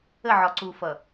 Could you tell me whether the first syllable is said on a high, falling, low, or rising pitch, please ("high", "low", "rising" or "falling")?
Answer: falling